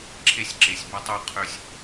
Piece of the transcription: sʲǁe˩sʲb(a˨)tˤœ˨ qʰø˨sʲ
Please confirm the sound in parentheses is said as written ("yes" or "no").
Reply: yes